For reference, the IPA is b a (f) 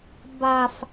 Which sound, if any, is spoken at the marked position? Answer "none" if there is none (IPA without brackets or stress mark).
f